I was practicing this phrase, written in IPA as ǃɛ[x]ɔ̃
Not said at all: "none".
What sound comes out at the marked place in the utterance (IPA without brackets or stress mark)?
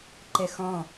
x